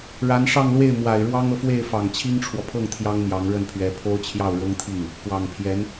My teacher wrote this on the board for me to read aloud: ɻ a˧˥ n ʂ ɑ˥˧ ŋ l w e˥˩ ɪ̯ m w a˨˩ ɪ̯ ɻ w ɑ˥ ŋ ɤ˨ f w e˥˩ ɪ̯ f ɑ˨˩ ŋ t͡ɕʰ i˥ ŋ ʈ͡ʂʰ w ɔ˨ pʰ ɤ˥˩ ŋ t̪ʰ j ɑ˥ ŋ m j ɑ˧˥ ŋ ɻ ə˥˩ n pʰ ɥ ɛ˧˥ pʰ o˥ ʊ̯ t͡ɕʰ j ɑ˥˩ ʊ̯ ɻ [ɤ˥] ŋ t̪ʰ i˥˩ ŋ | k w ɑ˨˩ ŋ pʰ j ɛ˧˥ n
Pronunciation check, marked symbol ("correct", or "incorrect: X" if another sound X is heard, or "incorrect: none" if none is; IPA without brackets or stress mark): correct